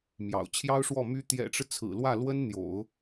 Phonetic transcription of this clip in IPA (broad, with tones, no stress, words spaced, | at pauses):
mjɑ̰˨˩ʊ̯t͡ɕʰjɑ˥ʊ̯ʂwɔ˥˩ my˧˥ t̪jɛ̰˨˩ʈ͡ʂɻ̩˦ t͡sʰɹ̩˨˩lwä˥˩lwə˥n n̪jo̰˨˩˦ʊ̯